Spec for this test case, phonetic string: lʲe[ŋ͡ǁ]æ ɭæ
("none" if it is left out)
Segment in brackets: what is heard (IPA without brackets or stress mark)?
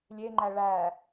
ŋ͡ǃ